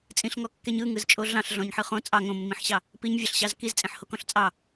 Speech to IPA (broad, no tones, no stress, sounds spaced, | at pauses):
t͡sʼ ĩ ɬ ŋ ɔ kː e ɲ ɯ ŋ ɯ z t͡ʃʼ o ɮ ɑ̃ ɬ ɮ ɔ̃ ɲ ħ ɯ χ õ t͡sʼ ɑ ŋ õ mː ĩ ħ ɕ ɑ | p i ɲ vʲ ɑ ɬ ɕ ɑ z k i z t͡sʼ ẽ ħ h o k ɔ̃ ɬ t͡sʼ ɑ